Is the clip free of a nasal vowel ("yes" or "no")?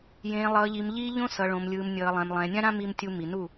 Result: no